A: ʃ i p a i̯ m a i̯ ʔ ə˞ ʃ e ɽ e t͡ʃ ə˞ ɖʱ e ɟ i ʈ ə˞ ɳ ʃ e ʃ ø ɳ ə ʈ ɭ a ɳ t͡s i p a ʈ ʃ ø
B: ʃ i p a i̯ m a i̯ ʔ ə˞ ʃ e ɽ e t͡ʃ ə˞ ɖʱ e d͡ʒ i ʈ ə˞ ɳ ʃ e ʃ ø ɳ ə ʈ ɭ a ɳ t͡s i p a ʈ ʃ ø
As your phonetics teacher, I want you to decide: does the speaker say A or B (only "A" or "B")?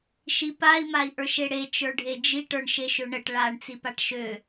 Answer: B